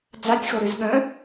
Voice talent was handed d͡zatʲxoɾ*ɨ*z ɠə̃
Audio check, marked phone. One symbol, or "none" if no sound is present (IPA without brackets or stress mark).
ɨ